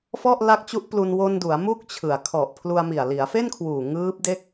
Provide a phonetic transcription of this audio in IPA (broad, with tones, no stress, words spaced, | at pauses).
fɔ˥˩ʔ la˦˥k̚ t͡ɕu˦˥ʔplu˧n wo˧ndu˩˦a̯ mu˥˩k̚t͡ɕʰɯ˨˩a̯ kʰɔ˨˩ʔpʰlu˧a̯mi˨˩a̯ li˩˦a̯fe˥˩nkʰwuː˨˩ ŋɯː˦˥p̚de˥˩k̚